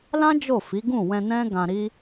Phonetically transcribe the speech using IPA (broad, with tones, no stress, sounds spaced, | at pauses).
l ã˦ d͡ʒ o˦˨ f i˨˦ ɡ ũ˦˨ w ɛ̃˧ n ɛ̃˦ ɡ ã˧ ɾ i˦